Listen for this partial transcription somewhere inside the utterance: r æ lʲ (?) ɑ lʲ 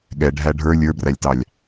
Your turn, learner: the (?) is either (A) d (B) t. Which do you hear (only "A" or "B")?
B